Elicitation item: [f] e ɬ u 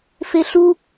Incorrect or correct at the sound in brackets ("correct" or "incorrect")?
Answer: correct